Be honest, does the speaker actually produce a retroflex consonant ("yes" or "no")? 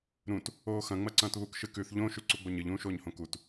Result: no